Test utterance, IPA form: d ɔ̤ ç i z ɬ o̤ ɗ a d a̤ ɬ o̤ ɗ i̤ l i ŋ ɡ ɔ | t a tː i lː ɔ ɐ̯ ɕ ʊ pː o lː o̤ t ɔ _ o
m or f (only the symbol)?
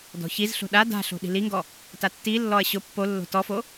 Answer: f